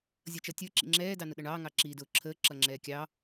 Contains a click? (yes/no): yes